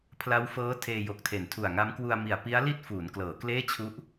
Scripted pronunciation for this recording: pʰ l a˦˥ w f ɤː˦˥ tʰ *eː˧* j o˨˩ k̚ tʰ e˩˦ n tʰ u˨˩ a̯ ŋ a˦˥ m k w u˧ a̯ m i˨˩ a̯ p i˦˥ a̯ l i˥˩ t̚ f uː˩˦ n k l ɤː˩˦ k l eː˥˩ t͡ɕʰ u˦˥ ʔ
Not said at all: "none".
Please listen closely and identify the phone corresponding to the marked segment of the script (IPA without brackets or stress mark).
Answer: eː˧